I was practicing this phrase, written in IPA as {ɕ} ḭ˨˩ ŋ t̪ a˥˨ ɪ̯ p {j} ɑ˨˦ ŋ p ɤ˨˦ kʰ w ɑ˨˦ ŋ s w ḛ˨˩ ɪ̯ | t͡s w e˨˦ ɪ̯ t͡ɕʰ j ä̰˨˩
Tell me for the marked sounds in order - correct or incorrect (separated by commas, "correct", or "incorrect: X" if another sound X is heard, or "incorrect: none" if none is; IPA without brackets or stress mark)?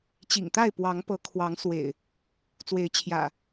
incorrect: t͡ɕ, incorrect: w